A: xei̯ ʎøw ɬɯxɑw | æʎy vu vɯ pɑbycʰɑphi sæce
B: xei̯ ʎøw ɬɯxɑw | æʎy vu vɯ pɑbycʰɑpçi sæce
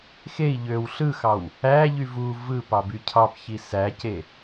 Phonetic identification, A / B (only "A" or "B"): B